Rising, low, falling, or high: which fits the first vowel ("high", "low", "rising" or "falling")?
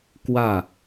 falling